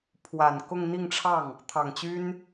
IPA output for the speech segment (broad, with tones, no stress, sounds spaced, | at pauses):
pʰ w a˨˩ n k ʊ˥˧ ŋ n̪ i˥˧ ŋ ʈ͡ʂʰ ɑ˥˩ ŋ | t̪ʰ ɑ˨˩ ŋ t͡ɕ y˥ n